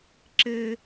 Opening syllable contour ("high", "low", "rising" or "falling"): high